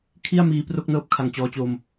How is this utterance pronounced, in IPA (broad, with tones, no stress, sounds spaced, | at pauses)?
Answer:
kʰ i˥˩ a̯ m iː˧ p r o˥˩ k̚ n ɤː˦˥ p̚ kʰ a˨˩ ŋ t͡ɕ ɔː˧ t͡ɕ o˧ m